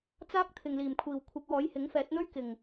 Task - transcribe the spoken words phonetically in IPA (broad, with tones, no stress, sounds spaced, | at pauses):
t͡s aː˥ k̚ t̪ʰ ɪ˨ ŋ l iː˨˩ m kʷʰ iː˨˩ w kʷʰ ɪ˨˥ k̚ w ɔː˨˥ j h ɪ˨˥ ŋ f ɛː˨˥ t̚ n̪ ɵ˥ ɥ k ɪ˨˩ ŋ